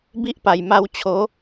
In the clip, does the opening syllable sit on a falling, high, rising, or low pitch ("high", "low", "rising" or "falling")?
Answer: high